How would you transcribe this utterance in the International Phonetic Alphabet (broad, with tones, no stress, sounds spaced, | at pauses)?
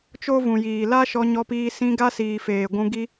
t͡ʃ o˦ v ũ˨ j iː˨ l a˦ ʃ ɔ˧ ɲ ɔ˧ p iː˧ s ĩ˧ ɡ a˦ s iː˨ f eː˨ ɡʷ ũ˧ ɡ i˦